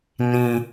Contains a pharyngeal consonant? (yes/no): no